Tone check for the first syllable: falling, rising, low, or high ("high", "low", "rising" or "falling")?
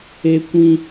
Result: high